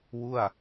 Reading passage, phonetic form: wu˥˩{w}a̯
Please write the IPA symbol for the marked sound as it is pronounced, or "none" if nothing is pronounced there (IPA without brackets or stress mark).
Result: none